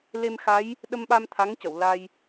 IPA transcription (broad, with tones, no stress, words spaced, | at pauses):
le˧mxa˧˥j | ɗə˧mɓa˧m t̪ʰa˧˥ŋcə˨˩˨wla˧j